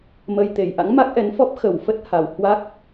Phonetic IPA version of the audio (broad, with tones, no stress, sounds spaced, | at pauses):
m ə˧ j t̪ e˨˩ j ʔ a̰˧˥ ŋ m a˦˥ k̚ ʔ ɛ˨˦ n f ɔ˦˥ p̚ x ə˧˩ w f ə˦˥ t̚ h a˨˩ w h w a˦˥ k̚